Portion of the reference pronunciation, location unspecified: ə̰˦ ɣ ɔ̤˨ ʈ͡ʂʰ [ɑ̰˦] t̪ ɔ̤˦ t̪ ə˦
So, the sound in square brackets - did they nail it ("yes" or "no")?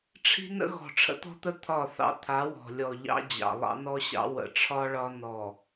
no